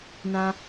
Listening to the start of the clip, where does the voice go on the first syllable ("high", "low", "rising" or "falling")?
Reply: high